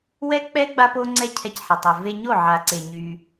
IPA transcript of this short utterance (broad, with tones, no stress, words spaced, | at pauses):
wɛ˦k͡pɛ˦ ɡ͡ba˦po˦ŋ͡ǀɛ˦ cʰɛ˧cħɛ˨tˤœ˨ ve˧ɲo˦˨ʕa˨ǀe˨ ɲy˧